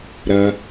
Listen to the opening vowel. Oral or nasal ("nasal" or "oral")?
oral